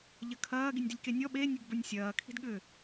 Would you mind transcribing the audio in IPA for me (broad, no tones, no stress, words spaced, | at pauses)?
ʎɐkʰɐː ɡinʲdilʲkenʲɔ ɓe nʲəɡbə˞nʲsʲɐː kʰi̤dɠʏ